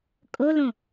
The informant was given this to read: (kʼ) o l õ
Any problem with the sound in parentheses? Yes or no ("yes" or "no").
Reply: no